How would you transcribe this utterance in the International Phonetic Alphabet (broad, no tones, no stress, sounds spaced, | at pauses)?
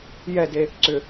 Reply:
j ɛ d e | ǀ ʏ